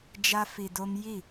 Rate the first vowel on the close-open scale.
open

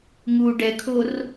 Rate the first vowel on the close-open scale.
close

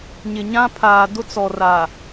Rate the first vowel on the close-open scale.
close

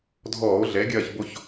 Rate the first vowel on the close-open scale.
mid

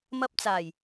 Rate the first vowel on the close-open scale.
open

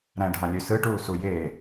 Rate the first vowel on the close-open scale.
open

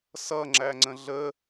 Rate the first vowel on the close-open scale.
mid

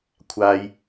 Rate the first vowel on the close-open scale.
open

